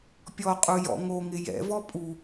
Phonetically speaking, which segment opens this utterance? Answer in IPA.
pʲ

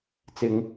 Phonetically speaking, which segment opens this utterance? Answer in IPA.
t͡s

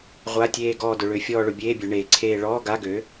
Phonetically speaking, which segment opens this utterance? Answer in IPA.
ʁʷ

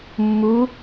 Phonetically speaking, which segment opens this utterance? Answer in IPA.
mː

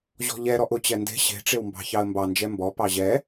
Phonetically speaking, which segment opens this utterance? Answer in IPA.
ʑ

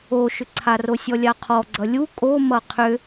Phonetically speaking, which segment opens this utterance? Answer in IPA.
o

